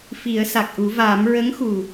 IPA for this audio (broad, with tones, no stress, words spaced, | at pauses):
fi˨˩˦ə̯sa˨˩k̚ʔu˨˩˦ vaː˨˩˦m ɹə˧˥ŋxu˨˩